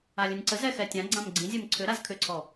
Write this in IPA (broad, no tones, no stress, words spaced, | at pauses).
alʲə̃nʲǀəzɛ xɛtʲãɡ͡ǀãm ɡ͡ǀĩzʲɛm ǀʰʏ ɾazkʰʏǀʰɔ